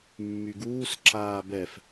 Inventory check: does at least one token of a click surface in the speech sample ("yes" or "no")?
yes